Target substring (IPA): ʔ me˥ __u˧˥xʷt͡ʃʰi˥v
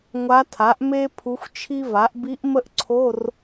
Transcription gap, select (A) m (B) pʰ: B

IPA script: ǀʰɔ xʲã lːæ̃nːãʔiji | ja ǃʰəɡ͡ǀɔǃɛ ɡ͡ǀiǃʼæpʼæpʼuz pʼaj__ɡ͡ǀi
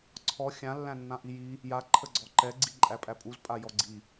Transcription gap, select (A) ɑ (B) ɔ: B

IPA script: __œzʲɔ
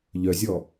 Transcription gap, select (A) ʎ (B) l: A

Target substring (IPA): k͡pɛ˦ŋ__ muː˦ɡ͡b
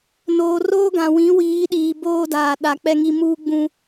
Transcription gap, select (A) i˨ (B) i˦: B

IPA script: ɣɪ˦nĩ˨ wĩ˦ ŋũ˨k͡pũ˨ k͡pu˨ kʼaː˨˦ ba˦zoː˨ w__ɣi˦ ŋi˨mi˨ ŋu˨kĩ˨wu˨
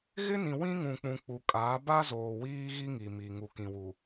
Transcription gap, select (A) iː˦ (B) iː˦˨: A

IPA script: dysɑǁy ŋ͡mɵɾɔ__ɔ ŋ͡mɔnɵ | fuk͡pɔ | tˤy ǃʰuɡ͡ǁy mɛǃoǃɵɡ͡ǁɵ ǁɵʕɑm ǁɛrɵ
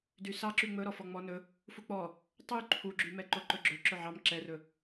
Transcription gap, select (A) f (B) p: A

